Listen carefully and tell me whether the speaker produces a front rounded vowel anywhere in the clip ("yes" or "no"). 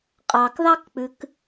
no